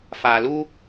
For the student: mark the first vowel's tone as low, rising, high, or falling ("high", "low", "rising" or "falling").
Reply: low